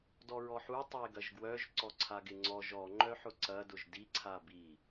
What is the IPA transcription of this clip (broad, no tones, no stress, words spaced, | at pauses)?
dɔɹɔħu tˤeɡɐʒɡwœʒ ǀɔǀʰaɡɪŋ͡ǀɔʒ ɔ ŋ͡ǃœħʊǀɐ dʊʒdi ǀʰabi